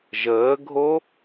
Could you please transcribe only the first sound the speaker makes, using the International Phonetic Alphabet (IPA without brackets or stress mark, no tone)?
ʒ